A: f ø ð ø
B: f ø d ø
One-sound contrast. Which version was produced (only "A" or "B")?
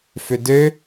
B